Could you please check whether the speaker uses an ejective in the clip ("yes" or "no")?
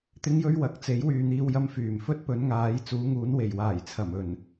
no